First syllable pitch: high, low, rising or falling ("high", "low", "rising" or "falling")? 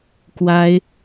high